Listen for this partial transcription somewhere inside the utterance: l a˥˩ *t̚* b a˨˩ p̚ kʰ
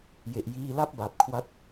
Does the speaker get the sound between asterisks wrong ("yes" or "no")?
yes